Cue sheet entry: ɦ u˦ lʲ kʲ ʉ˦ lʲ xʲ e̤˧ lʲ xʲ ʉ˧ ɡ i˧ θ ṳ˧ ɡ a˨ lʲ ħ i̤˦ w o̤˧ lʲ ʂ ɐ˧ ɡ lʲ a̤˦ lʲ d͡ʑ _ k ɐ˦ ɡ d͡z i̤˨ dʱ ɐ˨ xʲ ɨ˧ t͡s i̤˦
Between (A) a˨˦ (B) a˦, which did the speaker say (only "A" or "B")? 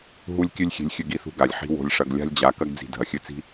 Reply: A